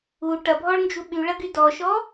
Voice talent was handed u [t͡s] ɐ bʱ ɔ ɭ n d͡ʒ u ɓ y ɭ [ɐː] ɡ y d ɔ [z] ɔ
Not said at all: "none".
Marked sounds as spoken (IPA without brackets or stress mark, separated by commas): ʈ, ɐ, ʃ